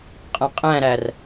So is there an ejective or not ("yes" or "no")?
yes